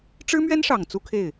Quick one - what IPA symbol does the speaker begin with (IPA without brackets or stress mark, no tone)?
ʈ͡ʂ